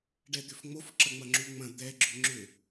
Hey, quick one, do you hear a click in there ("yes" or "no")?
yes